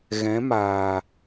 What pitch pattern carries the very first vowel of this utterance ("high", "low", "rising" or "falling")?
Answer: rising